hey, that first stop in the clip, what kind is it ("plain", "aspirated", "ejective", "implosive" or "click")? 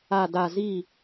plain